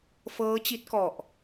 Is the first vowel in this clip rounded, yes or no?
no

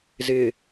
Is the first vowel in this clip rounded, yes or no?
no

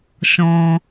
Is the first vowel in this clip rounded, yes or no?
yes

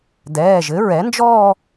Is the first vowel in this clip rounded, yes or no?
no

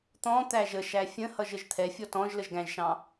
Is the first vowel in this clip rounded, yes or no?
yes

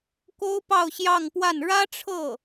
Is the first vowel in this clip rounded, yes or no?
yes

